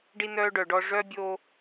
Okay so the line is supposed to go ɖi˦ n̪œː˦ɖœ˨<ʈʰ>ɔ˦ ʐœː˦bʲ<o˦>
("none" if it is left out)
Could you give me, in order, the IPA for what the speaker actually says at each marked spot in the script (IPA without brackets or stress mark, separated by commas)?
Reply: ɖ, o˦